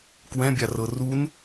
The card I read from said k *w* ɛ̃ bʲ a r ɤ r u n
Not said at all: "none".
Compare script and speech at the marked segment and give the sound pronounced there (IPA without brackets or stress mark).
w